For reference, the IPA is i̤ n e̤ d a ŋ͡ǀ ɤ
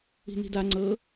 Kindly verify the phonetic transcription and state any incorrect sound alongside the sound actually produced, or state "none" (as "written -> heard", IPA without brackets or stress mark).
e̤ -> i̤